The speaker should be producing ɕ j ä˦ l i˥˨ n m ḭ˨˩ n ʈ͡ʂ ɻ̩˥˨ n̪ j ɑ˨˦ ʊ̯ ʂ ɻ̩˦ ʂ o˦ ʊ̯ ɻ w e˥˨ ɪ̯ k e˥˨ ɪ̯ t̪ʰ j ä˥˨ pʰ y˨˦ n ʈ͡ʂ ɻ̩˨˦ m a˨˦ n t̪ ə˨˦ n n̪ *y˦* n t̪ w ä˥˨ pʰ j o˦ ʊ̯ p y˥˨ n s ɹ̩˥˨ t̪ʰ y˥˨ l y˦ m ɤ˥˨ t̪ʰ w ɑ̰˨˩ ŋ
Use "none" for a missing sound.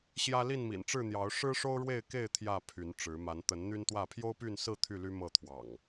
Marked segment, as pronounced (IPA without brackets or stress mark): y˦